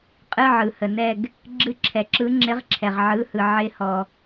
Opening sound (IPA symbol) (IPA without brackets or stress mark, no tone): qʼ